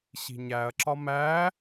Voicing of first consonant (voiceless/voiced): voiceless